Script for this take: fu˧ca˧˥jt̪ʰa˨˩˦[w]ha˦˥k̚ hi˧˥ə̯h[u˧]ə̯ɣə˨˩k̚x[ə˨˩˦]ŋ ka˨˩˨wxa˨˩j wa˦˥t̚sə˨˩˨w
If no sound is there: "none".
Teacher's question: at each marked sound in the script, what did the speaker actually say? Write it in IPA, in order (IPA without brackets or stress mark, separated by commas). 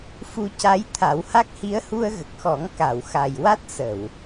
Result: w, u˧, ɔ˨˩˦